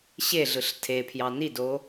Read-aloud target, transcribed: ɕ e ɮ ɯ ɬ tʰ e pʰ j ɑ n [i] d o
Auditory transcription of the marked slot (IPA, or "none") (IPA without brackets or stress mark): i